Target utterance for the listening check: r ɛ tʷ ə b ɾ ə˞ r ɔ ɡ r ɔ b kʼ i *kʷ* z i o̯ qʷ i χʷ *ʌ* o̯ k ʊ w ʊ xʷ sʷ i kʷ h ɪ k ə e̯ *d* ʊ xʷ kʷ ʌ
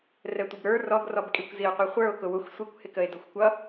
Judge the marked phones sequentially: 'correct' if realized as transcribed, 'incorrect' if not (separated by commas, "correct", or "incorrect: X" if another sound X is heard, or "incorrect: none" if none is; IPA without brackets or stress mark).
correct, incorrect: ə˞, correct